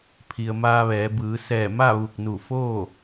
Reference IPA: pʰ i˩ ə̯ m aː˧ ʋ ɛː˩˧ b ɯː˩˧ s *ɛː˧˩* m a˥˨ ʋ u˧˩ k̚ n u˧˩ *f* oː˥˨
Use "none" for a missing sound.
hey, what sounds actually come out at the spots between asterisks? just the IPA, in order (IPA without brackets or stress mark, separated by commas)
ɛː˧˩, f